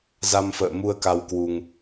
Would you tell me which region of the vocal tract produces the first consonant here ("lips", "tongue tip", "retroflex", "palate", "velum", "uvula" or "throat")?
tongue tip